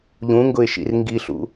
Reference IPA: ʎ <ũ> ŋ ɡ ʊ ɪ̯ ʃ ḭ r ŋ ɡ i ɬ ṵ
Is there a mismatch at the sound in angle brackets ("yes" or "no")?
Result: no